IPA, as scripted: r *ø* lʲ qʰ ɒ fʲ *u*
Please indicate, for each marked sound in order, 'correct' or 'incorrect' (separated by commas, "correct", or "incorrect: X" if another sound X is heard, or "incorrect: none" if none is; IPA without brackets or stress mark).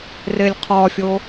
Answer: incorrect: e, incorrect: o